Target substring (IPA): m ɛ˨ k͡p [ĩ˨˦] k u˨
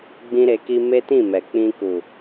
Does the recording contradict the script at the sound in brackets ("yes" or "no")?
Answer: yes